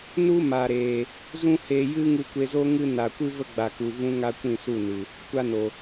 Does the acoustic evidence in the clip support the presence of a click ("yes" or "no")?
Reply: no